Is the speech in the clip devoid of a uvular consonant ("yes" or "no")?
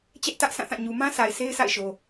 yes